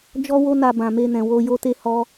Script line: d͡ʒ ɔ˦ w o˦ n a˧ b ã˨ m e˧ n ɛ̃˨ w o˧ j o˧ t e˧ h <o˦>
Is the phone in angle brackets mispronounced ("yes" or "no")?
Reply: yes